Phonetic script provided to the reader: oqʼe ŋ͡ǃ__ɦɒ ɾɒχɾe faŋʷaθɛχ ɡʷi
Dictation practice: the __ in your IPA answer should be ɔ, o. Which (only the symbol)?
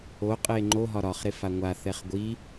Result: o